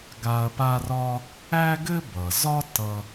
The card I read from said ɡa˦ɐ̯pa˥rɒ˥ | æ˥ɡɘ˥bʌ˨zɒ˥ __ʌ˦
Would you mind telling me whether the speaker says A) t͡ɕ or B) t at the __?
B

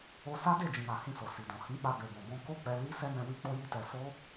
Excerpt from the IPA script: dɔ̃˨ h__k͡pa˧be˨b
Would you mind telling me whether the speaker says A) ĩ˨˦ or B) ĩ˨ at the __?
A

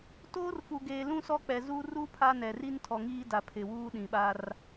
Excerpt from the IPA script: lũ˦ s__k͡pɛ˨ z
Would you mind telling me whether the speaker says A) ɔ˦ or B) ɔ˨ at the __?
A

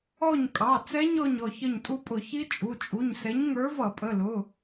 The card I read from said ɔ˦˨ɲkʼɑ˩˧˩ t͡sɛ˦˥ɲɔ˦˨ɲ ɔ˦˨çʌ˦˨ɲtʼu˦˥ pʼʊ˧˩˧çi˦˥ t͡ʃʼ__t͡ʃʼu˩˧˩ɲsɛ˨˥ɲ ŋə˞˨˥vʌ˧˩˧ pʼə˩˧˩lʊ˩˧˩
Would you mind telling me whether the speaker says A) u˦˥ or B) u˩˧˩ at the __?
B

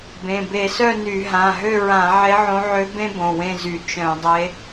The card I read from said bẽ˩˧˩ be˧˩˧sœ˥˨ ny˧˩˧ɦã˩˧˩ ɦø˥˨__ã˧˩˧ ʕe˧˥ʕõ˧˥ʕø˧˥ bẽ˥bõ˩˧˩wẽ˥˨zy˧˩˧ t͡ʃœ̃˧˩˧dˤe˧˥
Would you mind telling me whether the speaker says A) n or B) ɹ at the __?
B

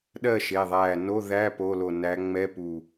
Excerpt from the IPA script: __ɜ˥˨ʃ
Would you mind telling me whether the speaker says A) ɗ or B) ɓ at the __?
A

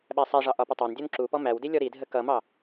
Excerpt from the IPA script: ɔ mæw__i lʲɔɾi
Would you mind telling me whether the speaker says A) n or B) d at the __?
B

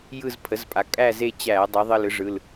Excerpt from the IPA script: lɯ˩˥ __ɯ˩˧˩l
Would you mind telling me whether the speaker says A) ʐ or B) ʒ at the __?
A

